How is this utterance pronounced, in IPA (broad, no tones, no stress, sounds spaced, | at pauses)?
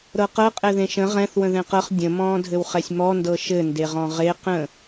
ɾ ɤ q ɤ qʼ ɛ ð ẽ ʃ ə̃ ʁ ɛ̃ θ w ə̃ ð ɛ̃ q ɤ χ dʲ ə̃ m ɔ̃ː dʱ ɘ w χ ɛ sʲ m ɔ n d ɤ ʃ ɘ n d e ʁ ɔ̃ ʁ e q ə̃